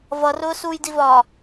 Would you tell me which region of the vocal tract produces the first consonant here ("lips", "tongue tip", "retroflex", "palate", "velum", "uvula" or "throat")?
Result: lips